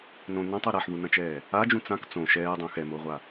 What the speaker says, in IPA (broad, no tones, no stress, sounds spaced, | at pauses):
n õ n ɐ̃ tˤ o ɾ a ħ ð u n ɐ̃ t͡ʃ ɛː | a d͡ʒ ũ t͡s ã k t͡s õ ʃ ɛː dˤ ũ x ɛ m o ʁʷ a